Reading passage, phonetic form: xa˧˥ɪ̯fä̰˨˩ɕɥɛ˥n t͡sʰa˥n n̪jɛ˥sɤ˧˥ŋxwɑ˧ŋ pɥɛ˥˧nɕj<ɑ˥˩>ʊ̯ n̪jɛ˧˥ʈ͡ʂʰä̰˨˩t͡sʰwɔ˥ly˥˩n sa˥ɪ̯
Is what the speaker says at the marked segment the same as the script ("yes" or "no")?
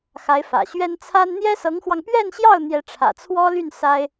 yes